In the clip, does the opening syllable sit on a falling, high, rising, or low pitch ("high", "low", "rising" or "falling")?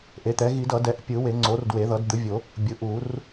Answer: rising